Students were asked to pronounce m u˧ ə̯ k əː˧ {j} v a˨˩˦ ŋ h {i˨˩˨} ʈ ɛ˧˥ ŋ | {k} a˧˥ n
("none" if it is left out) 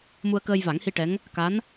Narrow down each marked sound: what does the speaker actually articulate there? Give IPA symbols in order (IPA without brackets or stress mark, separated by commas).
j, i˧, k